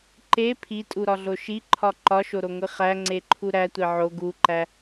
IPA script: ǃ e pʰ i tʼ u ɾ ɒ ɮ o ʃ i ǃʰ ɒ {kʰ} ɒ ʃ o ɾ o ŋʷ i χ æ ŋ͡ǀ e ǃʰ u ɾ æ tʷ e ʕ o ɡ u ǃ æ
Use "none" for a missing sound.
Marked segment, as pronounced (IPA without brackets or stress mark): ǃ